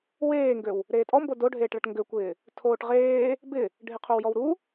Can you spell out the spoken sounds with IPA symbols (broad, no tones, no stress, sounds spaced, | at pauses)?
w eː ŋ ɡ ø w | ɾ eː tʼ ɔ m b o d o ɖʱ eː ʈ ɭ ɐ ʈ ŋ ɡ ø kʷ ɪː | tʰ oː ʈ ʁ eː | b ɪ | ɖʱ ɪ qʰ o w j ɔ w ɾ u